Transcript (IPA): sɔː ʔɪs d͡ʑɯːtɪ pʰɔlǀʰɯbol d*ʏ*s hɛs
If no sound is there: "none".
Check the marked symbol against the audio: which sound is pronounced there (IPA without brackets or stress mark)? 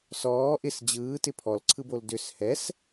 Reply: ʏ